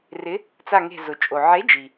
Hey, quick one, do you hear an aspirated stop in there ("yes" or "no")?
no